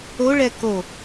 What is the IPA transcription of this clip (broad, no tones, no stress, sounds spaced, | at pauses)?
o ɭ ɛ k o